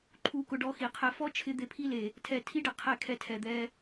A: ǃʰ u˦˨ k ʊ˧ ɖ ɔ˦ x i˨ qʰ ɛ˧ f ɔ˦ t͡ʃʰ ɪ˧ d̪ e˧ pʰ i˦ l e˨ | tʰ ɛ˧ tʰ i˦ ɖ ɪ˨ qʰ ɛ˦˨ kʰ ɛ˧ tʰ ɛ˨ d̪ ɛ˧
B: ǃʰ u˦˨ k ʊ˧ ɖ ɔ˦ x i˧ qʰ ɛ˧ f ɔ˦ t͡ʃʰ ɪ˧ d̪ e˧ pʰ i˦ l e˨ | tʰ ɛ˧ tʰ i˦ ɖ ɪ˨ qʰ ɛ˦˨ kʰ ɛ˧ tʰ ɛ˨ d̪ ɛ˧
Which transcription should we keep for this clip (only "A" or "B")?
A